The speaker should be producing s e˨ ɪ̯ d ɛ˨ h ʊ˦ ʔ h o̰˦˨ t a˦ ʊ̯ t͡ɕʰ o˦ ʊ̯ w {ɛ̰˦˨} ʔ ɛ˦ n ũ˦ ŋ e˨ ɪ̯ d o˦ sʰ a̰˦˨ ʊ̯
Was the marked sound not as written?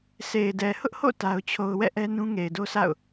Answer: no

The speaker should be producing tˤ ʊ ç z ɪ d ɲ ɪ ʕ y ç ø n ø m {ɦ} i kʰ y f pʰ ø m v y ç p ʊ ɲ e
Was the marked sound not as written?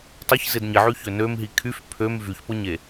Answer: no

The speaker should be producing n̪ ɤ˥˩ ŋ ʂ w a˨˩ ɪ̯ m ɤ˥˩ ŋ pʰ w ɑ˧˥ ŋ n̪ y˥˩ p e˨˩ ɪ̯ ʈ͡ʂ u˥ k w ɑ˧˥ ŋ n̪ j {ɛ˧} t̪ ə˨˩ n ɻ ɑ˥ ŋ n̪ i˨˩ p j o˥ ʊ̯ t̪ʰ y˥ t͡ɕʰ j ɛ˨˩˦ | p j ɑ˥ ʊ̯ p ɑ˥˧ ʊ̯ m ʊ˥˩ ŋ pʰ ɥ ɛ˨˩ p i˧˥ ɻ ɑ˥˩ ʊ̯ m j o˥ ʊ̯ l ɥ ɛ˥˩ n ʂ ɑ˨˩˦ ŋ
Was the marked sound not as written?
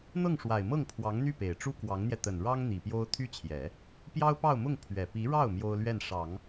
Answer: no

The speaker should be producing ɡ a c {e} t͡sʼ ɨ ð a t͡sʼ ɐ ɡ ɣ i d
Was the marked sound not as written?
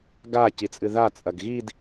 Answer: yes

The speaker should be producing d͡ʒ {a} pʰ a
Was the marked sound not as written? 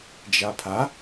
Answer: no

